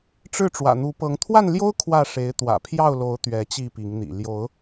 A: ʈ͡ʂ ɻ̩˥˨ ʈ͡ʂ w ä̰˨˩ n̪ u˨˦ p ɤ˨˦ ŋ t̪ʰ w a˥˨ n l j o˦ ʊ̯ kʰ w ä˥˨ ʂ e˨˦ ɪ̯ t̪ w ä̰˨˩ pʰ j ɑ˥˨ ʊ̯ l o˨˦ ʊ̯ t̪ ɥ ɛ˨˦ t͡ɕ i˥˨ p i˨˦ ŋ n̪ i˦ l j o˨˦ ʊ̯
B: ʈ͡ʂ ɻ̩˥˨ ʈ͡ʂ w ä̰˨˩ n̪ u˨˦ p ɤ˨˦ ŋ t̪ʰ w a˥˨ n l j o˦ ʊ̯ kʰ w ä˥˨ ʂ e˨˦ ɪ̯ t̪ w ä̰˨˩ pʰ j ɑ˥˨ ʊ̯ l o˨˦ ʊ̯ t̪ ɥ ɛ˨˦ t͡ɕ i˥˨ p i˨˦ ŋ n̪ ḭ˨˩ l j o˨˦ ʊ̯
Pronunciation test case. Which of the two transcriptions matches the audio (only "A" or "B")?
B